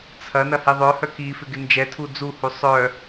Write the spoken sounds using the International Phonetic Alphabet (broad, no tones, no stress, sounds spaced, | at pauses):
t͡sʰ ɐ n ɐ h i ðˤ œ h œ k i f ɪ ɡ ɪ n d͡ʒ ɛ tʰ u d͡z u h u sˤ œ